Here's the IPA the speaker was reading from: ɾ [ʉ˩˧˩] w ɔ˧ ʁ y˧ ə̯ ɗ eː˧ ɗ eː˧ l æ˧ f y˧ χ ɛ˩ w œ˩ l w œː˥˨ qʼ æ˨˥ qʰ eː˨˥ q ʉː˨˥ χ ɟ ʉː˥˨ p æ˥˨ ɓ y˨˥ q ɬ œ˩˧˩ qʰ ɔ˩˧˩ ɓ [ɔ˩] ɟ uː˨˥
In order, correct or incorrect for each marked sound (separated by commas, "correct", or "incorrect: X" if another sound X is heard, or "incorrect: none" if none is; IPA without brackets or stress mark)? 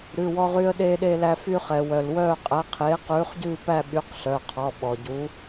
correct, correct